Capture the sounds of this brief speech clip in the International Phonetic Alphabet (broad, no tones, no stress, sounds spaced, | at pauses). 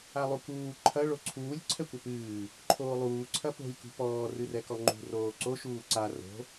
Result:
a lˠ u k uː ǃʰ ɐ ɭ o ǀʰ uː lʲ ǀʰ ɛ kʷ ɐ p ɨː | ǃʰ oː lˠ uː ǀʰ ɐ p o̤ lʲ k ṳ p ɔː r ɨ r ɛ k ɔ ŋ͡ǃ ṳ r oː ǀ o ʃ uː ǀ a r o̤